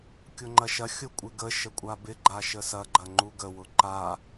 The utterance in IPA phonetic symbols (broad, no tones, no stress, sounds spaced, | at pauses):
kʲ ʊ ŋ͡ǃ ɐ ʃ ɐ xʲ ʊ kʷʼ ɪ ɡ ə ʃ ə kʷʼ a b ɪ ɡ͡ǃ a ʃ ə s ɐ ɡ͡ǃ ɐ ŋ͡ǃ u ɡ ə w ʊ ǃ a